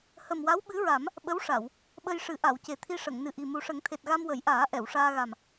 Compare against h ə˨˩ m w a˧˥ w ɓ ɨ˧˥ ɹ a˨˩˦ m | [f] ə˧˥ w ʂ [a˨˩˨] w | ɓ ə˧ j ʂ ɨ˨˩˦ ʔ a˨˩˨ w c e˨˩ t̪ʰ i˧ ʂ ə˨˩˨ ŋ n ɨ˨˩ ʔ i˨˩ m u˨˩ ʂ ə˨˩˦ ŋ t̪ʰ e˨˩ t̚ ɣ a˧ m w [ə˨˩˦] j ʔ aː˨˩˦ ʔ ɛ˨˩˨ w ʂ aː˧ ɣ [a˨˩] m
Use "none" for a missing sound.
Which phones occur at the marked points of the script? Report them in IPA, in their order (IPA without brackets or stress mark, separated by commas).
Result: ɓ, a˨˩˨, ə˨˩˦, a˨˩